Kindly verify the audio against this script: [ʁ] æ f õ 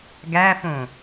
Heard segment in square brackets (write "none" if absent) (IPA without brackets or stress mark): ɡ